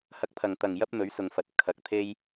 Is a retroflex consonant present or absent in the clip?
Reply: absent